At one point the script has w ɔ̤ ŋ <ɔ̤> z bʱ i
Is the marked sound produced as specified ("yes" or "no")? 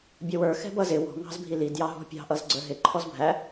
no